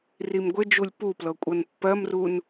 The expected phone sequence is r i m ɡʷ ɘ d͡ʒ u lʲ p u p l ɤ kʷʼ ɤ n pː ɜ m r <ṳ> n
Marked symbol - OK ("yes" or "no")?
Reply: no